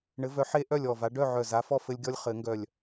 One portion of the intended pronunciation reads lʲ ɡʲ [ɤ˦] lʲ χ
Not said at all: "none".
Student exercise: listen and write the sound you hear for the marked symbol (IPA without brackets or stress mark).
ɔ˦